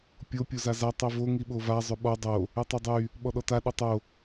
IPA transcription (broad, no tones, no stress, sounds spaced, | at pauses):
pʲ o pʲ o z a z a tˤ i v o ŋ i ɓ o v a zˤ ø ɓ ɔ dˤ o | ɯ tˤ ø dˤ y | ɓ ɔ ɗ ɔ t a ɗ o tˤ o